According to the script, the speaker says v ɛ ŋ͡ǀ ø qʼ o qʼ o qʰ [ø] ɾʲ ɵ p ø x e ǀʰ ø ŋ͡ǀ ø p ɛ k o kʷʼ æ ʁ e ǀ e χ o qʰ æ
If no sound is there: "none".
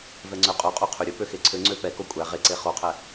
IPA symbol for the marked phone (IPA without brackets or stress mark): ø